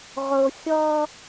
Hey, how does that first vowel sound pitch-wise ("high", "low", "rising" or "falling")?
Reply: low